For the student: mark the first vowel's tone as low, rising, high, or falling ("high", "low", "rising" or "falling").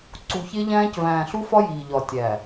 low